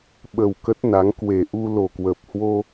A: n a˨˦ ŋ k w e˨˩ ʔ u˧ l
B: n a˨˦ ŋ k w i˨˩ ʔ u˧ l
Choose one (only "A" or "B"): A